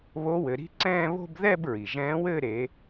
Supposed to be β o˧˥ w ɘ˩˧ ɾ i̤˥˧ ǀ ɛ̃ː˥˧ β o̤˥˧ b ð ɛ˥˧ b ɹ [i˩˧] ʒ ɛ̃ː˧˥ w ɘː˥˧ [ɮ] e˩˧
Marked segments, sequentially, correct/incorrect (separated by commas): incorrect, incorrect